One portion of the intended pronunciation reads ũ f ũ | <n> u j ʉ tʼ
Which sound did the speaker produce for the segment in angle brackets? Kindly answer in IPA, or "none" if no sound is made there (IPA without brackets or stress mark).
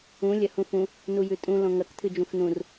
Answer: n